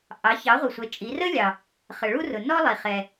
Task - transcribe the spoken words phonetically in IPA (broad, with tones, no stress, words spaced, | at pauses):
ʔɑ˩˥ çɑ˩˥ʁʷʌ˩sʷɛ˩˧ t͡ʃʼi˩˧rə˥lʲɑ˩ | χə˩ɭu˥rʊ˩ nɔ˥lˠi˩ χɛ˩